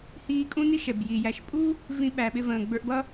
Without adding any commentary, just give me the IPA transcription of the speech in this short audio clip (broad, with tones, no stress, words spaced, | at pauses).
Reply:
hiː˦kʼũ˥ni˥ ʃɛ˩bji˩jæ˨ʃpʼu˥ | vĩ˦ɓæ˨ɓɪ˦ və̃ː˩ ɡ͡bə˞˦ʔbʌ˥